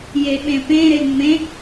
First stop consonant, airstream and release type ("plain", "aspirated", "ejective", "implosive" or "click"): implosive